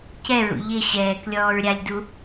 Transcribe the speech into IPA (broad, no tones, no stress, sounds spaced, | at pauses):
c ɛ ɹ ṵ ʎ ɪ ɕ ɛː k lʲ ɔː ɹ ɾʲ a lʲ d u